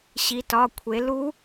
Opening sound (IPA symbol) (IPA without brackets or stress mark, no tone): ɕ